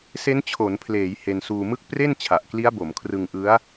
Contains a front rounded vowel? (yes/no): no